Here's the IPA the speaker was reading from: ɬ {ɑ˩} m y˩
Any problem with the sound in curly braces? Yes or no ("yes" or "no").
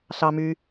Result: no